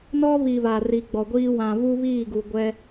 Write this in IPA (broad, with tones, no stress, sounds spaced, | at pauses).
n ɔ˦ β i˨ β a˨ r i˨ ɡ͡b ɔ˨ ɡʷ iː˦ w ã˨ β u˦ β iː˦˨ ɡ u˨ ɡʷ ɛ˦